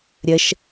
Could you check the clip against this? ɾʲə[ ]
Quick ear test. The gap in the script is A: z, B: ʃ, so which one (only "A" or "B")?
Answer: B